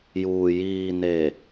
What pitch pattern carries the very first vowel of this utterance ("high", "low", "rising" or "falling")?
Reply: low